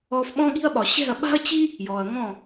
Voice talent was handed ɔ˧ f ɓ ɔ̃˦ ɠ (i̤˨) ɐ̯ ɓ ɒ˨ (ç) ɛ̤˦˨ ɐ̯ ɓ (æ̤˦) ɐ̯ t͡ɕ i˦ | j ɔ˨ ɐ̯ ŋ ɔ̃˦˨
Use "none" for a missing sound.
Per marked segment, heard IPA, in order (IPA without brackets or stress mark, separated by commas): i̤˦, ɕ, a̤˦